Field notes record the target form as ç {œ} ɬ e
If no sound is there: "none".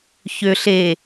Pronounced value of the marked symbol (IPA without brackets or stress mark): ø